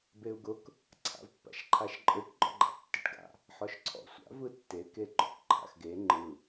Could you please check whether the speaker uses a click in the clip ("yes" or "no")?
yes